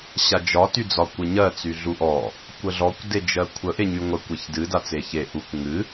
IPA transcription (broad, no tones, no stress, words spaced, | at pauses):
ɕad͡ʒɒ tyd͡zɒkʷɨɲɜ t͡syɮuʔɔ | kʷəɮɔkʷ ded͡ʒɜkʷʰə ʔeɲyŋʷə kʷeçdɨ dat͡seçe ʔukʷ ŋɨ